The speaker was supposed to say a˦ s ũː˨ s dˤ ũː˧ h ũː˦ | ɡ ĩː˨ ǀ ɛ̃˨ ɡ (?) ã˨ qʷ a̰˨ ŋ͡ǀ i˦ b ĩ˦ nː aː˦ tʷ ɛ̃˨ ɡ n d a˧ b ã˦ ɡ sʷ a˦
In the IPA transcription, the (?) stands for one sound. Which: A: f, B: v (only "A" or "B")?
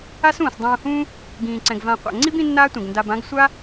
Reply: B